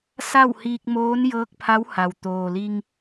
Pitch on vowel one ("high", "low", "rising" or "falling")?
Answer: falling